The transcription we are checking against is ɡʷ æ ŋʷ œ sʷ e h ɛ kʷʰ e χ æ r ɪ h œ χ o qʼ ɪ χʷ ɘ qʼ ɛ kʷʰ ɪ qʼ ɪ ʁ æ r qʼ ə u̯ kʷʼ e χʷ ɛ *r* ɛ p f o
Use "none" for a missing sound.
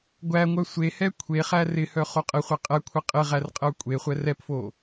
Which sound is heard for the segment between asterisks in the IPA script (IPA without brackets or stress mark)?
r